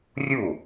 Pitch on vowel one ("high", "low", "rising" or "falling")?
falling